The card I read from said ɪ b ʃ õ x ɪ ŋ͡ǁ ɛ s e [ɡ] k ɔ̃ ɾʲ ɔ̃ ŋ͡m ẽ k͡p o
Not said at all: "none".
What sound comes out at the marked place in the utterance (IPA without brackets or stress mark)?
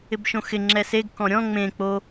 ɡ